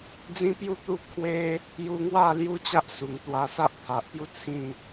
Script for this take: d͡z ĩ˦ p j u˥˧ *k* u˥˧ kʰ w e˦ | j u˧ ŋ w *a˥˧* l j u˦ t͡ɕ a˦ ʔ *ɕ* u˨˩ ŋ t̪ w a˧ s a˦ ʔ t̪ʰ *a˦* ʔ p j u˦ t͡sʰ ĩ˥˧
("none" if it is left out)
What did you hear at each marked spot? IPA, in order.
t̪, a˥˧, s, a˨

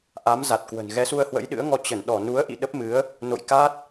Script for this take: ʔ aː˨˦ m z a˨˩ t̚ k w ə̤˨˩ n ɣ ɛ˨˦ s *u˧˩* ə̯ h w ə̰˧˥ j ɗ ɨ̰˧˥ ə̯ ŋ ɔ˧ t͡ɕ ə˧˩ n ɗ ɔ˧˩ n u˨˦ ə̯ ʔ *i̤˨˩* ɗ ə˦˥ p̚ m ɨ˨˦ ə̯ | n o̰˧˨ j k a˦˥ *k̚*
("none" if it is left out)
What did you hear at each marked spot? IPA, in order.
u˧, ḭ˧˨, t̚

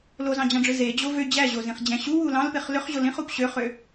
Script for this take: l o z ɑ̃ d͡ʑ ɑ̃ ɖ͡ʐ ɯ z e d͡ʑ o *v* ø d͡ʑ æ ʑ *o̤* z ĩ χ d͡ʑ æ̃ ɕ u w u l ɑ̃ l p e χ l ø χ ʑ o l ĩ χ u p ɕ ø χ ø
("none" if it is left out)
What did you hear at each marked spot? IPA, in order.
v, o

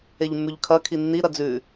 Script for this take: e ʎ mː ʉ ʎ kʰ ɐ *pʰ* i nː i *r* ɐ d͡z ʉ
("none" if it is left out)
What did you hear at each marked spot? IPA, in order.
kʰ, ɾ

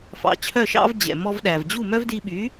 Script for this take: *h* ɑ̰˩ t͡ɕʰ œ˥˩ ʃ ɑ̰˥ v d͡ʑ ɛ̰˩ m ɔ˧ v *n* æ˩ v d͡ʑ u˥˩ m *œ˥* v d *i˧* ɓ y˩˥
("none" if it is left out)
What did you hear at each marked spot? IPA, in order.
f, ɗ, œ˥, i˧

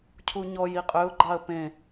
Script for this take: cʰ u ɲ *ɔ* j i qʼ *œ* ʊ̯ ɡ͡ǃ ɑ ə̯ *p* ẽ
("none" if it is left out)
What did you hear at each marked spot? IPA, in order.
ɔ, ø, p

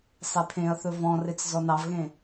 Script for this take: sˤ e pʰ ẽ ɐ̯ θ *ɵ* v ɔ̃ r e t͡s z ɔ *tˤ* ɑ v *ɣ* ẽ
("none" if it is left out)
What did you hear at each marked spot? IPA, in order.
ɵ, n, ɣ

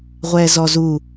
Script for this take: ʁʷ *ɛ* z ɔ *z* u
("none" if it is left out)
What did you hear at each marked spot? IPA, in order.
ɛ, z

